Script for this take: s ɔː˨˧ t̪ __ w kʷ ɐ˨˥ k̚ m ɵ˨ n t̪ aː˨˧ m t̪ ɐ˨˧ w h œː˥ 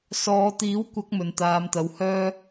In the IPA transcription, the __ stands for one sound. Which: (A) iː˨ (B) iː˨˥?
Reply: B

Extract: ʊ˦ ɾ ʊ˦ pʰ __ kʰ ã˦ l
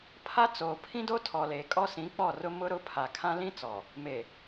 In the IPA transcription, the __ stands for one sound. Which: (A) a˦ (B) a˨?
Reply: B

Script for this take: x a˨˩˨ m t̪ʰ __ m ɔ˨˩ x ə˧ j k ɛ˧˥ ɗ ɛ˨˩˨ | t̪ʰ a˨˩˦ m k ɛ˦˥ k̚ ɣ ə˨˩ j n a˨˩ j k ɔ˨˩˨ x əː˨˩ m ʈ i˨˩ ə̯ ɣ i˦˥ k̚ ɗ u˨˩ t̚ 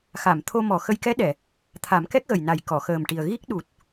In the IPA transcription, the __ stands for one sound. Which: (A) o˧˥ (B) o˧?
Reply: B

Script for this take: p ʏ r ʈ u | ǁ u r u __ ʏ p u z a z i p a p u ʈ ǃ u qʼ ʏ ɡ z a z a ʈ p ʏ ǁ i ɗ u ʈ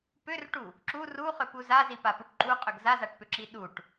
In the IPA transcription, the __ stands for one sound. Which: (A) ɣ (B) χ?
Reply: B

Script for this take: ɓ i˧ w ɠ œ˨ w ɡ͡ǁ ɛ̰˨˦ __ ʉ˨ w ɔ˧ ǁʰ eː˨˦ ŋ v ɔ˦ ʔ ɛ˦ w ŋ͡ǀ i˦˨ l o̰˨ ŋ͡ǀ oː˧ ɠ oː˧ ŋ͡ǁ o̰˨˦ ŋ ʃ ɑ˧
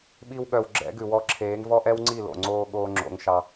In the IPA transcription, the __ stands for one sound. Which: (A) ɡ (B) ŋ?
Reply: A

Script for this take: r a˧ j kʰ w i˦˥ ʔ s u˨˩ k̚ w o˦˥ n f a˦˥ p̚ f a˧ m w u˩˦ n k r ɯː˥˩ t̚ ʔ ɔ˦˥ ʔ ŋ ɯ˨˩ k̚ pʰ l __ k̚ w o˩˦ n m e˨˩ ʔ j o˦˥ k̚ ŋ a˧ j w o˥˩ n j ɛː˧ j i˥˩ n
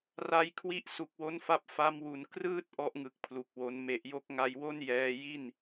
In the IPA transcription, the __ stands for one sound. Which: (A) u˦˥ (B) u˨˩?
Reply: B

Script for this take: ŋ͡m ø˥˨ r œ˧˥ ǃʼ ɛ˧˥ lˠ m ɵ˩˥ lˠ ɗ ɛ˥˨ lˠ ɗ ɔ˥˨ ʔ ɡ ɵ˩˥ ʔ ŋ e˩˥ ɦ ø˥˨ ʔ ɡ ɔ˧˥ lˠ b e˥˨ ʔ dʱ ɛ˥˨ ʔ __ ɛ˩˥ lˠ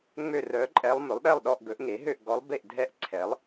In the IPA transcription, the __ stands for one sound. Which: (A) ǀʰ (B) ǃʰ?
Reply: A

